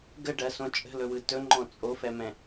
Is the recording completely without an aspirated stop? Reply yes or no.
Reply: yes